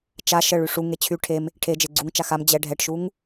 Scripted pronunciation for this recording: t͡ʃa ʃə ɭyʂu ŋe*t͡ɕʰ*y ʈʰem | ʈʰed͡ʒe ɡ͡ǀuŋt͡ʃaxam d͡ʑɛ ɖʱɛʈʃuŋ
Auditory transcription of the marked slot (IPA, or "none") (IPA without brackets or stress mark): t͡ɕʰ